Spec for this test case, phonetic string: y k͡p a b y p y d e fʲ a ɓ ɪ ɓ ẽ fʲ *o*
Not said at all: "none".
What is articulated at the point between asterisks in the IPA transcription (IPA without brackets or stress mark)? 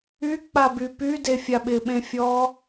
ɔ